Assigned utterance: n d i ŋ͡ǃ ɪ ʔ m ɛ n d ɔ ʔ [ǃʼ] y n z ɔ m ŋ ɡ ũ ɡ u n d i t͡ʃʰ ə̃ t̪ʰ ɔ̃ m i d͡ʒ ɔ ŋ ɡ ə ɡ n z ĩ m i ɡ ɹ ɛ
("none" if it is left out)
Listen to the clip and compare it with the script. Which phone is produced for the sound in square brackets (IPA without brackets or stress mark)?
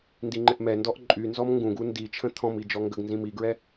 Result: ǃʼ